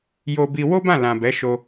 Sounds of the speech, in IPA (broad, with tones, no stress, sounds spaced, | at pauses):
j o˧ b i˧ w o˦ b ã˦˨ l ã˨ b ɛ˨˦ ʃ o˧